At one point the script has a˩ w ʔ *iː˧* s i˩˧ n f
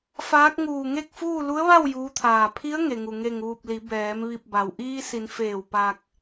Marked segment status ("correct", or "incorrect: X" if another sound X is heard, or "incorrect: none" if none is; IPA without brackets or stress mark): correct